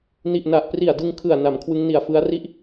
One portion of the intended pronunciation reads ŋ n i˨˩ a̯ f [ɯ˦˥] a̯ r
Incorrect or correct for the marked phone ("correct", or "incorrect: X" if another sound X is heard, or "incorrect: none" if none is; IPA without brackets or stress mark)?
correct